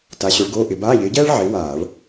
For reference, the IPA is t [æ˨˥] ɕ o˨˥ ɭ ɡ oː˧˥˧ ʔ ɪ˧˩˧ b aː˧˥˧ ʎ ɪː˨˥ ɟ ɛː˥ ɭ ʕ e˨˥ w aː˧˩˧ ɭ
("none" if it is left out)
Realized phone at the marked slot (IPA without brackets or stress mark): a˨˥